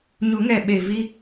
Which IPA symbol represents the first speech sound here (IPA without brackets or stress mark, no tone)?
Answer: ɲ